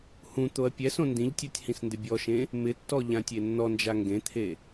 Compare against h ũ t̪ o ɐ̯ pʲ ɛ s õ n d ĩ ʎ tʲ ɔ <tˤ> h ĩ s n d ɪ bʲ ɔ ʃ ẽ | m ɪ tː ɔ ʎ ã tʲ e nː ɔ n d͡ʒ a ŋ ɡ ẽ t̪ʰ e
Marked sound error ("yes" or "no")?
yes